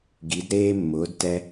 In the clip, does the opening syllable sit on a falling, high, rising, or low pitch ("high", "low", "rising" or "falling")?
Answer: rising